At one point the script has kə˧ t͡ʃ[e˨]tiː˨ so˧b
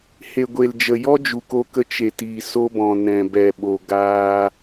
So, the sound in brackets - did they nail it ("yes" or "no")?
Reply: yes